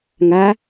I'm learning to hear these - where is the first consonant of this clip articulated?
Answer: velum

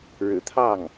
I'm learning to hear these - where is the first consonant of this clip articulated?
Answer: retroflex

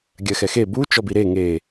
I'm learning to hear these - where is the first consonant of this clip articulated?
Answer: velum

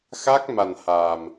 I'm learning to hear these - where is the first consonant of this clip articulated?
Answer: velum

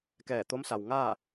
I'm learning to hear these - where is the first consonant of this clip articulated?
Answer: velum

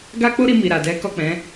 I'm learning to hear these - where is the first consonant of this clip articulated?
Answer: velum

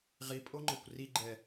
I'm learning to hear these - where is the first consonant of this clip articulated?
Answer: uvula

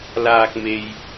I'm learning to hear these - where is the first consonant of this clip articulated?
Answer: tongue tip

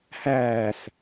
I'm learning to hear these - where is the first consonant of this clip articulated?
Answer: throat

